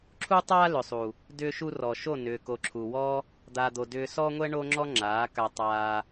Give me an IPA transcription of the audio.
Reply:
ǁʰ u˦ tˤ aː˦ l ʏ˨ sˤ u˨ | d ʏː˧ ʃ u˧ r ɔ˨ ʃ o˦˨ n ʏː˨ k o˨ ǁʰ u˨ w ɔ˦ | d̪ aː˧ d̪ o˧ d ʏː˧ s ɔː˦ ŋʷ ɛ˦ ɳ o˦ ŋ͡ǁ ɔ˦ ŋ͡ǁ aː˨˦ k a˧ tˤ aː˧

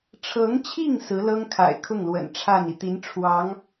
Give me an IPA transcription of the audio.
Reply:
ʈ͡ʂʰ ɤ˧˥ ŋ t͡ɕʰ i˥˩ ŋ s ɹ̩˧˥ l ɤ˥ ŋ kʰ a̰˨˩ ɪ̯ kʰ ʊ˥˩ ŋ l w ə̰˨˩ n ʈ͡ʂʰ a˥˩ n i˩ t̪ i˧˥ n ʈ͡ʂʰ w ɑ˧˥ ŋ

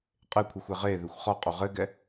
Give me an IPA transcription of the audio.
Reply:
qʼ e kʷʰ i xʷ e ʁ e ð e xʷ χ ɔ qʼ o ʁ ɘ ɡ ɛ

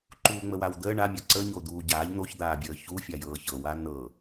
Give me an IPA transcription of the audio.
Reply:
ǃ uː ŋ͡m ə w a w d̪ əː ɳ a mʲ ɤ ǀ ə ɲ o d̪ uː ɟ aː ʎ n̪ o ç d̪ aː bʲ əː ç u fʲ a j ɤː ç ɤ w a n ɤ

